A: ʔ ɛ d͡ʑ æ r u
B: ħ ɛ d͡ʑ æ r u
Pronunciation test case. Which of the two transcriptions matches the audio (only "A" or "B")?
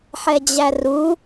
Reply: B